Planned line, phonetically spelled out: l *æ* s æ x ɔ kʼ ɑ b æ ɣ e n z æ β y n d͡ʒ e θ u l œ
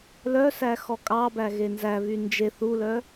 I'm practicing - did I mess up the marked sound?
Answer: yes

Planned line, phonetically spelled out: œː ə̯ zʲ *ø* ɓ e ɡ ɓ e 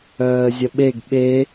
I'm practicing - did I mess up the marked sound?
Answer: yes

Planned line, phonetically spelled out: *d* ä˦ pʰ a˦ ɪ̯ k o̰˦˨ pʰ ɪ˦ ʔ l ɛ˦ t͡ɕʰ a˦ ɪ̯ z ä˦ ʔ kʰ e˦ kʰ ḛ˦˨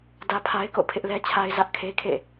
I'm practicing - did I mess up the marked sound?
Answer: no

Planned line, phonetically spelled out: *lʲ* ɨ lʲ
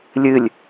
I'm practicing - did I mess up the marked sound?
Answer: no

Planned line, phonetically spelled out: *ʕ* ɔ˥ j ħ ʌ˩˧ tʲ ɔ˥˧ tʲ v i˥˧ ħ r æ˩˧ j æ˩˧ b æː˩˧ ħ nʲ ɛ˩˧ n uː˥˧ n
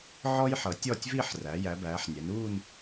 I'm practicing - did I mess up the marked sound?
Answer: no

